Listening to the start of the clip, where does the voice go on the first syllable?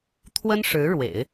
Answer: high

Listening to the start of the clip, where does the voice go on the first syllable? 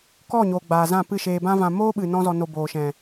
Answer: falling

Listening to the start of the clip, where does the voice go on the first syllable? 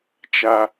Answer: high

